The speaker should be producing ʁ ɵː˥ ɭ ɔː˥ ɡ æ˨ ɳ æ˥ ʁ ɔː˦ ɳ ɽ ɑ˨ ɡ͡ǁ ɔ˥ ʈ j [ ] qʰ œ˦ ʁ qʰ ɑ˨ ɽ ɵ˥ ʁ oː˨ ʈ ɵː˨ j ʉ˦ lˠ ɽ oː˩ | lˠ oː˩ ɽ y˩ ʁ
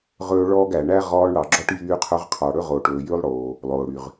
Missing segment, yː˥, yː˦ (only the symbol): yː˦